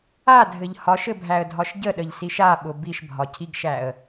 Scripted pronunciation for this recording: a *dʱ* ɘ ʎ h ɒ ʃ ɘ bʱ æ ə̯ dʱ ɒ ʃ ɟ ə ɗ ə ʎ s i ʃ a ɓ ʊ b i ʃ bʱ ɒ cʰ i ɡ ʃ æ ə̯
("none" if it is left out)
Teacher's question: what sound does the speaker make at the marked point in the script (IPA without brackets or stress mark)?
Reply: dʱ